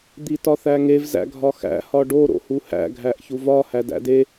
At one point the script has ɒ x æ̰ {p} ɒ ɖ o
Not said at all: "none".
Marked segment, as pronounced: h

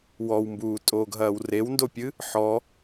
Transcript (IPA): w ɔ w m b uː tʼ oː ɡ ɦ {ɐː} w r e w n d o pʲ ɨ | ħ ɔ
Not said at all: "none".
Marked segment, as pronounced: ɐː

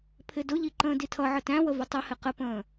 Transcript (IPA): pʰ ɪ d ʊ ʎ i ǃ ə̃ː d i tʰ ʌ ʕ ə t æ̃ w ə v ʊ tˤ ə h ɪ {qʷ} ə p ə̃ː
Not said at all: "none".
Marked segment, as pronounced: q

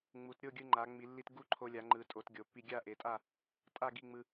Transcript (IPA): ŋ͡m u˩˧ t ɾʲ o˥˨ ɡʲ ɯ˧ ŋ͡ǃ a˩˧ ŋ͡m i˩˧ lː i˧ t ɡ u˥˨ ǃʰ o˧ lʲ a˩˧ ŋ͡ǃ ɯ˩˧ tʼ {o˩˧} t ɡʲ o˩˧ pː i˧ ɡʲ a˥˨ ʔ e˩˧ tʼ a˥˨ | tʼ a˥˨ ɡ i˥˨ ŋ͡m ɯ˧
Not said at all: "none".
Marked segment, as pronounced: o˩˧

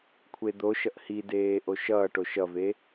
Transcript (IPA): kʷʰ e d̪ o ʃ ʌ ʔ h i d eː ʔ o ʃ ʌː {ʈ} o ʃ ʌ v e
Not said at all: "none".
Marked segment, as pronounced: ʈ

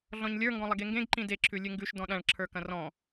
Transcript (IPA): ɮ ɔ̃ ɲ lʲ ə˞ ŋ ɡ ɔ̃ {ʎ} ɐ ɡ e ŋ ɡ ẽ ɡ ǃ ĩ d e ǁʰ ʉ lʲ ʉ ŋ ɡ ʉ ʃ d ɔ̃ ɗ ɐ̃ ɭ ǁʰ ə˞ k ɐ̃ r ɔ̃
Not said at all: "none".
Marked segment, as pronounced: lˠ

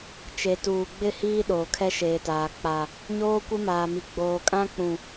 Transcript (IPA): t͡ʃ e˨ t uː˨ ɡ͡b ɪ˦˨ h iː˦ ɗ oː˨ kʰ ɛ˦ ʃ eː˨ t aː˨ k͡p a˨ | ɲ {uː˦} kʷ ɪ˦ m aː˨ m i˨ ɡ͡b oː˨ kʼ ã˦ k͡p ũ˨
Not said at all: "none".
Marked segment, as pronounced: oː˦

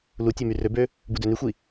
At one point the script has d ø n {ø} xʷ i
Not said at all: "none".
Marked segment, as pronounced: y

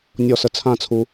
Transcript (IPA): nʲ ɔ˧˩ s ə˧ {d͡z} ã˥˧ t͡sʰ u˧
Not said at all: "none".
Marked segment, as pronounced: t͡sʰ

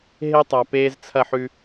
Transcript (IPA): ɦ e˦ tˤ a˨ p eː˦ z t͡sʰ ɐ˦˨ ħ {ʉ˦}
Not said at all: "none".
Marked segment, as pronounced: ʉ˦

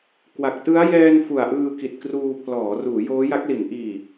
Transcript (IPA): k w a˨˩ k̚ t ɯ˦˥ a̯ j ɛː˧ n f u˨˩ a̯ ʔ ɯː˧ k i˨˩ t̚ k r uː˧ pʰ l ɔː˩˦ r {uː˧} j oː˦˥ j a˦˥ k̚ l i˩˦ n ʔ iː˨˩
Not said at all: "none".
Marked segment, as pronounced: uː˩˦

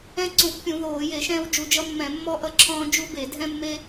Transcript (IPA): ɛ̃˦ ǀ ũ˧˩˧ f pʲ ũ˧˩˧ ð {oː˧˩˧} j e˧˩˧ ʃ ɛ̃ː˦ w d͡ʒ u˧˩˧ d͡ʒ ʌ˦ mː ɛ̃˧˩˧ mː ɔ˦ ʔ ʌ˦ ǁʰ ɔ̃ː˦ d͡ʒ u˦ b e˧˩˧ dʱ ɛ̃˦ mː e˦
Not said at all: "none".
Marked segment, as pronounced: oː˧˩˧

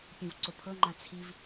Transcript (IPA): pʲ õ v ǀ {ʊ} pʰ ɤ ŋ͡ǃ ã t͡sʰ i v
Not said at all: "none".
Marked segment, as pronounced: ʊ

